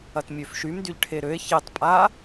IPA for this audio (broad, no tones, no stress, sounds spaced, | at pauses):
ɐ t mʲ ø f ʃ y m d y ʎ ʈʰ e ɾ ø e̯ ç e tˤ pʼ a